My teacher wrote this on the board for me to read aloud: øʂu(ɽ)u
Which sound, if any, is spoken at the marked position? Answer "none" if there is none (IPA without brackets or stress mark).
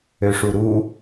ɾ